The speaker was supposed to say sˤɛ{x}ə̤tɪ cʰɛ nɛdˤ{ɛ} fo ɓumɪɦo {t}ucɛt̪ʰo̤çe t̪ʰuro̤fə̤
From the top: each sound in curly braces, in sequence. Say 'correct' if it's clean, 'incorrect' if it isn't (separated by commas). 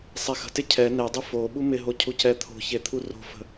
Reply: correct, incorrect, incorrect